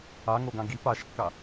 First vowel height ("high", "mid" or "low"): low